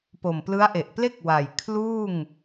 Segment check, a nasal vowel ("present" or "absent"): absent